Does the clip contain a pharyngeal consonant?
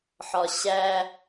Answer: yes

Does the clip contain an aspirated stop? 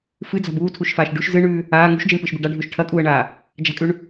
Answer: yes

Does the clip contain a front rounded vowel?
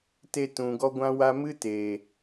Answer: no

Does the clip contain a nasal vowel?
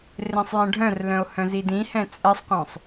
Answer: yes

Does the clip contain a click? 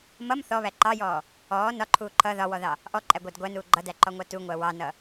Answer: yes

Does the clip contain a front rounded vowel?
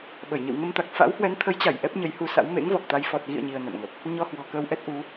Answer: no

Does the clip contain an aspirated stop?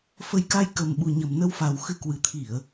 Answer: yes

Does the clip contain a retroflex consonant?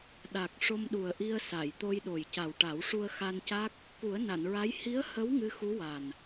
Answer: yes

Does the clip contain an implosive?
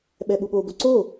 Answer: yes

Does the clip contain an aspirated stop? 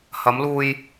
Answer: no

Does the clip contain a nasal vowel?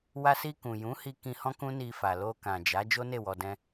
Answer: yes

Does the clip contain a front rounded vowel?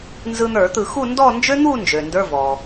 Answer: yes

